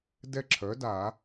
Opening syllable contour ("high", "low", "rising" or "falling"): falling